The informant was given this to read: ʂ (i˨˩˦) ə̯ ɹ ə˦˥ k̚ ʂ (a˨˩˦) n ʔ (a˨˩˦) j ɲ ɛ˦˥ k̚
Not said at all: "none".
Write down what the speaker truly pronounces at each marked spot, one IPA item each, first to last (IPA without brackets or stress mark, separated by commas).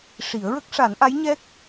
i˨˩˦, a˨˩˦, a˧˥